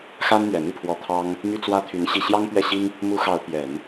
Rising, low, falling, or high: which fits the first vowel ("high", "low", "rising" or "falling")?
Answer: high